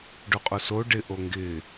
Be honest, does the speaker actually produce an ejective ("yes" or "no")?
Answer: yes